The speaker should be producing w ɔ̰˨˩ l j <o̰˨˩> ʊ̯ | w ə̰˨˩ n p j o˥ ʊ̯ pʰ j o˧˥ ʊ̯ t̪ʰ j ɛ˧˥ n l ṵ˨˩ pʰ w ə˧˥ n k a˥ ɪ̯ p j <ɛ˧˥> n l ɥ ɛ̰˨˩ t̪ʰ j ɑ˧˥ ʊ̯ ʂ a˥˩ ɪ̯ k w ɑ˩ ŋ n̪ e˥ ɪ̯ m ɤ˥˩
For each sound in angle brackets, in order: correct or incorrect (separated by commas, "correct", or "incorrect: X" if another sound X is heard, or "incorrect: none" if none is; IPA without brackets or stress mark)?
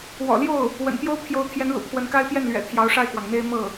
incorrect: o˥˩, incorrect: ɛ˥˩